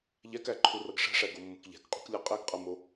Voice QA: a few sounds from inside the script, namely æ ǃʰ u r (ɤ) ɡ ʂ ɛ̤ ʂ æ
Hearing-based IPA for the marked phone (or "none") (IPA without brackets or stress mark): ɤ